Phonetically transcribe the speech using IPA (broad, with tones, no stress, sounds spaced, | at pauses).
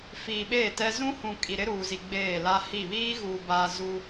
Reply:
f iː˨ ɓ eː˦˨ t ɛ˦ z ũ˦ h ũ˨ kʼ i˨ ɾ ɪ˦ ɾ uː˨ z i˨ ɡ͡b eː˦˨ l a˦ h i˦˨ β iː˦ ɣ u˨ b a˨ z u˦